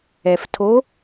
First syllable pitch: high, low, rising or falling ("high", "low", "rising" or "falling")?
low